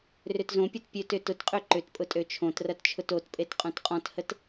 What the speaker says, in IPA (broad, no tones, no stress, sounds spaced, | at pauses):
r ʏ t z õ pʲ o t pʲ ø t ʏ t ʊ t qʼ ø ǃ ʏ t pʼ ʊ tʼ ø t͡ʃʰ õ t r ɐ t t͡ʃʰ ʊ t o t pʼ e t qʼ õ t qʼ ɔ̃ t h ə t